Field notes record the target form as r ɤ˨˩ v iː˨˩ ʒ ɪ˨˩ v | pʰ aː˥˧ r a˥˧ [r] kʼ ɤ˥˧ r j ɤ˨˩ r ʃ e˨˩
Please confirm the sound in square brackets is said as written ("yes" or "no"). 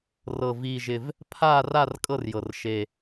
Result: yes